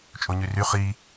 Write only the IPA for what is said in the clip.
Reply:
t͡ʃʼ o ɲ y r y χ i

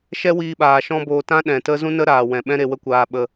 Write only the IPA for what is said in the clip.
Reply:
ʃ ɛ˦ w iː˧ ɓ aː˨ ʃ ɔ̃˦ b oː˧ t ã˦ ɗ ɛ̃˨ t ə˦ z ũ˦ n ə˦ ɾ aː˨ w ɛ̃˨ ɓ ɛ̃˦ ɾ e˧ w ə˦ kʷ aː˧ ɓ ə˧

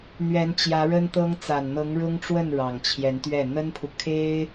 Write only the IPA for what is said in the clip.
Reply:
n̪ ɥ ɛ˧˥ n t͡ɕ j ä˧˥ ɻ ə˥ n t̪ ɤ˥ ŋ t͡s a˨˩ n n̪ ɤ˧˥ ŋ ɻ ʊ˥ ŋ ʈ͡ʂ w ə˥˩ n ɻ ɑ˨˩ ŋ t͡ɕʰ j ɛ˧˥ n t̪ ɥ ɛ˥˩ n̪ ə˥ n pʰ u˨ kʰ e˥ ɪ̯

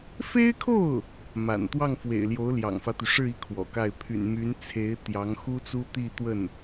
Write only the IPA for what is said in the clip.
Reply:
f e˥ ɪ̯ kʰ o˥˩ ʊ̯ | m a̰˨˩ n t̪ w ɑ˥˩ ŋ f w ḛ˨˩ ɪ̯ l j o˧˥ ʊ̯ l j ɑ̰˨˩ ŋ f ä˦ t̪ y˩ ʂ ɻ̩˥˧ i˥˩ kʰ w ɔ̰˨˩ k a˥˩ ɪ̯ pʰ y̰˨˩ n m y˧˥ n t͡sʰ e˧˥ ɪ̯ t̪ j ɑ˧˥ ŋ x u˥ t͡s u˥ t̪ i˥˧ t̪ w ə˥˩ n

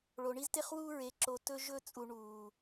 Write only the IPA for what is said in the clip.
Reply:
ɭ o˨ ɳ i˦ z t e˦ χ w uː˦ ɹ e˨ ǁ o˨ t ɵ˦ ʒ ɵ˦ t͡sʼ u˨ ɳ uː˨

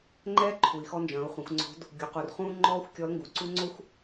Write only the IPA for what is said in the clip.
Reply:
ŋ͡ǃ ɛː˥ ǃʰ u˩ i̯ x ɔ˧ n d͡ʒ ɐ̃ː˩˧ u̯ χʷ ɛ̃˩˧ xʷ ŋ͡ǀ o̤˧˥ d | ɡʲ u˩ q u˩ r χ ũː˥ ŋ͡ǃ ɔː˥ xʷ kʲ ɔ˧˥ l ŋ ɡ u˩ ǀ u˥ ŋ͡ǀ o˥ xʷ

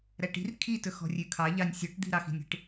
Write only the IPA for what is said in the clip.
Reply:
ɾ æ ʈ i̤ r kʰ i t ɵ x ɔ̤ rʲ ʉ kʰ ɑ ʎ ɑ nʲ sʲ ɔ ʈ d̪ i̤ ɾ ɑ x i̤ nʲ i̤ ʈ

